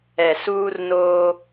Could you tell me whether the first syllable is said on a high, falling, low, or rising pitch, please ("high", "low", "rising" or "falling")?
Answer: low